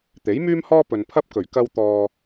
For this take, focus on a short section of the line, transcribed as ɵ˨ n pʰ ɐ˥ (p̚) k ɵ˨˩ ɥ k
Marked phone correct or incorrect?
correct